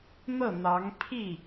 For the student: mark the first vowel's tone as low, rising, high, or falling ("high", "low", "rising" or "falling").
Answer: falling